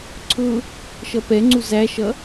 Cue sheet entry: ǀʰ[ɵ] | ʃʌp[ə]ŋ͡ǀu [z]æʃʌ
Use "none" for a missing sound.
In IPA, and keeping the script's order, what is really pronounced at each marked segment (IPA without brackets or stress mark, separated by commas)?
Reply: ʊ, ɛ, z